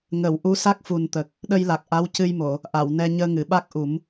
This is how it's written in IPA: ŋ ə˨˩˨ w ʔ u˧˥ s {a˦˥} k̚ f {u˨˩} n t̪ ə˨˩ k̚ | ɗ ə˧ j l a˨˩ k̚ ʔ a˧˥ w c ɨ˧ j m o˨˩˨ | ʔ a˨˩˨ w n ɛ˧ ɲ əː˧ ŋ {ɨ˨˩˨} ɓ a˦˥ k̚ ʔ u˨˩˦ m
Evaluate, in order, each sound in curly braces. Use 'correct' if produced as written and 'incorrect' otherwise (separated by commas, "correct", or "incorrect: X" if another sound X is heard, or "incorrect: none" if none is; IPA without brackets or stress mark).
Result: correct, correct, correct